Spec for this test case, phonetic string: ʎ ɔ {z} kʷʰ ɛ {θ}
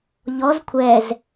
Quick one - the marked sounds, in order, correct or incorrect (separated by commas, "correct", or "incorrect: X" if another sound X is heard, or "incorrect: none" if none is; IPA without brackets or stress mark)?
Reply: correct, incorrect: z